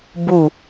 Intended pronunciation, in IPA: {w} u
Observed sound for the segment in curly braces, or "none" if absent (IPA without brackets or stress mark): b